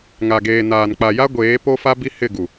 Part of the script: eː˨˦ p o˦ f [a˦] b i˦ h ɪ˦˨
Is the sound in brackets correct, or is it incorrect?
correct